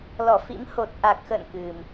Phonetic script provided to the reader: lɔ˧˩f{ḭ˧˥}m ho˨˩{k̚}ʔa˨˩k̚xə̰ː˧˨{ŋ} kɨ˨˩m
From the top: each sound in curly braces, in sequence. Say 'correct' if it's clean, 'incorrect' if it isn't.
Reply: correct, incorrect: t̚, incorrect: n

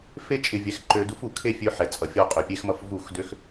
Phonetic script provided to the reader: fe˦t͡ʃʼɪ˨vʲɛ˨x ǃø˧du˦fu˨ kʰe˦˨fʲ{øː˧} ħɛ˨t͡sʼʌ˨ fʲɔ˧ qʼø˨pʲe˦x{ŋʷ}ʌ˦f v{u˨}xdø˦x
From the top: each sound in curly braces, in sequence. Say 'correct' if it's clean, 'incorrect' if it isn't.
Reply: incorrect: ø˧, incorrect: m, incorrect: u˦˨

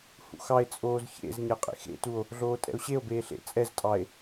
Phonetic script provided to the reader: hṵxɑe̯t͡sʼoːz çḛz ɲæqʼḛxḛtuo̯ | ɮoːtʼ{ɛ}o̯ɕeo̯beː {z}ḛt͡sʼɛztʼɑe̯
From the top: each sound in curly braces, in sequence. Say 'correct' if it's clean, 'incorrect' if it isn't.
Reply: incorrect: ɛ̰, incorrect: ɬ

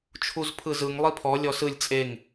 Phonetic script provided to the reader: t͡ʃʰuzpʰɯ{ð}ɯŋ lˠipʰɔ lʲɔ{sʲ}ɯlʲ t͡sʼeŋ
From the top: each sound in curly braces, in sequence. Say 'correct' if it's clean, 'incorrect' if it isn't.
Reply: incorrect: z, incorrect: s

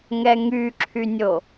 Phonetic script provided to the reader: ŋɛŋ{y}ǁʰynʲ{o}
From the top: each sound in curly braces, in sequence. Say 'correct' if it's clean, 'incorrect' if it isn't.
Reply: correct, correct

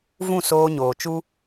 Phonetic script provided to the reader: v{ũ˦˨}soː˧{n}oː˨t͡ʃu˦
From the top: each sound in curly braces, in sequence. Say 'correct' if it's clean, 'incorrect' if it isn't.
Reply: correct, incorrect: ɲ

